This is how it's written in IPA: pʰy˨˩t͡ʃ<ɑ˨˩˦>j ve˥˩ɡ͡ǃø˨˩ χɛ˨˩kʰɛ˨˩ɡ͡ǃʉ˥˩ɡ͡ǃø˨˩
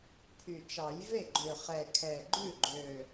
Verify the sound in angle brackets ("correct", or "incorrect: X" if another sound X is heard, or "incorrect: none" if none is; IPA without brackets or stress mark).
correct